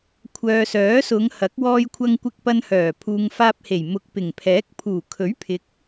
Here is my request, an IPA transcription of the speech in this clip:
kʷʰ œː˨ s œː˨˥ s ʊ˨˧ ŋ h ɐ˨˥ k̚ w ɔː˧ j kʷʰ ɐ˧ ŋ kʷ ɪ˧ k̚ p ɐ˧ n h œː˨˩ pʰ uː˨ ŋ f aː˧ p̚ h e˨˩ j m ʊ˨ k̚ p ɪ˨˩ ŋ pʰ ɛː˨˥ k̚ pʰ uː˨˩ kʰ ɵ˨˥ ɥ pʰ ɪ˨˥ k̚

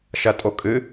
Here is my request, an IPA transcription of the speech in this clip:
ʃ ɐ tʼ o kʼ ɨ

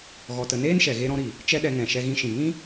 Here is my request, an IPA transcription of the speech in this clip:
ɣ ɔ˧ t ə˧ n eː˦ n ʃ ɛ˨ ɣ e˧ ɾ ɔ̃˧ ɾ i˨ | t͡ʃ ɛ˦ ɗ ɛ˧ ŋ ɛ̃˨ ʃ ɛ˧ ɣ ĩ˧ ʃ ĩ˨ ŋ ĩ˦

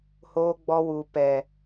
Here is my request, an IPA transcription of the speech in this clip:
h oː˧ ɡ͡b ɔ˧ w u˨ p ɛ˨

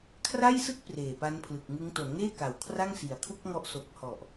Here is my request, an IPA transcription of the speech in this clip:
kʰ r a˥˩ j s ɯ˥˩ k̚ p r eː˨˩ p a˦˥ n pʰ l ɯ˨˩ k̚ ŋ ɯ˦˥ ŋ t o˩˦ n ŋ eː˥˩ k a˩˦ w kʰ r a˥˩ ŋ s i˩˦ a̯ kʰ u˥˩ k̚ ŋ ɔ˦˥ ʔ s o˨˩ k̚ h ɔ˨˩ ʔ

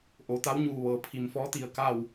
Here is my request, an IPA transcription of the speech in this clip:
ʔ o˩ t̪ a˧˥ w ɲ uː˧˩ ʋ ɤː˩ pʰ i˩ m f ɔː˧˥ t̪ i˧˩ ə̯ k a˥˨ w

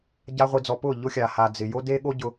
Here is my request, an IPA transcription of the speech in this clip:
ɟ a˧ ʁʷ i˨ d͡z ɔ˨ p ʊ˦˨ ʎ ʊ˦ xʲ a˨ h a˨ d͡z ɪ˨ j o˦ d e˦ ɠ o˦ ɟ ʊ˧

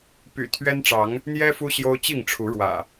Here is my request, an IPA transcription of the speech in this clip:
p y̰˨˩ t̪ʰ ɥ ɛ˦ n ʈ͡ʂ ɑ˨˦ ŋ | n̪ j ɛ˦ f u˦ ɕ j o˦ ʊ̯ t͡ɕ i˥˨ ŋ ʈ͡ʂʰ u˨˦ ɻ w ä̰˨˩

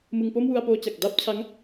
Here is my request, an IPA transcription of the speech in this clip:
m ɯ˧ ŋ p o˥˩ m w u˧ a̯ p oː˧ t͡ɕ a˨˩ k̚ d a˥˩ p̚ t͡ɕʰ a˦˥ ŋ

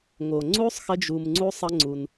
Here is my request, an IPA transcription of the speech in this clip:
ŋ o˨ ŋ͡ǀ u˦ sˤ x ə˦ d͡ʒ u˧ m ŋ͡ǀ u˦ sˤ ə˦ ŋ͡ǀ u˧ n

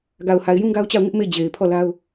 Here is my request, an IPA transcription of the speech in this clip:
ɡ a˨ ʊ̯ h a˨ ɪ̯ j ũ˦ ɡ a˦ ʊ̯ t͡ɕ a˦˨ ʊ̯ ŋ ɪ˦ ʔ m e˦˨ d͡ʑ e˨ ɪ̯ pʰ ɔ˦˨ l a˦ ʊ̯

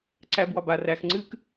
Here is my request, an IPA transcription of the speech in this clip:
ǀ æ b w ɒ b a r æ x ŋ͡ǀ ɨ k

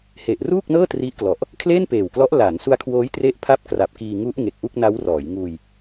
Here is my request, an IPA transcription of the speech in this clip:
h e˨˩ ʔ r uː˥˩ k̚ n ɤː˥˩ t r i˦˥ ʔ k l ɔ˨˩ ʔ | kʰ l eː˥˩ n p eː˨˩ w k l ɔ˦˥ ʔ l aː˩˦ n s u˦˥ a̯ kʰ w oː˦˥ j t r e˦˥ ʔ pʰ a˥˩ p̚ k r a˨˩ p̚ k iː˧ ŋ u˦˥ ʔ ŋ e˨˩ k̚ ʔ u˥˩ k̚ n a˦˥ w r ɔː˩˦ j ŋ uː˧ j

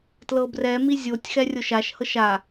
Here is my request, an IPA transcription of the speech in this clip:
t l ɤ b r ɛ m i zʲ o tʲ x ɛ rʲ o ʃ a ʃ h ɤ ʃ a

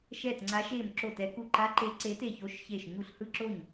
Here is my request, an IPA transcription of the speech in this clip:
ʃ ɛː˧˩ t ŋ͡ǀ a˨˦ ʃ eː˧˩ m ǁ o˧˩ t ɛ˨˦ k u˧˩ ǃ a˨˦ ǃ e˨˦ ǀ e˨˦ t e˧˩ ç o˨˦ ʃ ç eː˧˩ ʃ ɲ u˧˩ ɬ h ɯ˧˩ ǁ o˧˩ ɲ

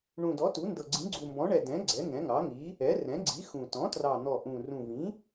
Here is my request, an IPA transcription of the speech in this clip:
ɳ ũ˨˩ d ɔ˩˥ t u˩˥ n d ɤ˨˩ ɡ͡ǀ ĩ˩˥ ɡ͡ǀ u˨˩ m b ɔ̃˩˥ ɳ ɛ˨˩ d ɛ̃˩˥ ɡ͡ǀ ɛ˩˥ ŋ ɛ̃˩˥ ŋ ɑ˩˥ ŋ i˩˥ | ɛ˩˥ r ɛ̃˩˥ ɡ͡ǀ i˩˥ x ũ˨˩ t ɔ̃˩˥ t r ɑ˨˩ n̪ ɔ˨˩ ʔ ũ˨˩ r ũ˨˩ v ĩ˩˥

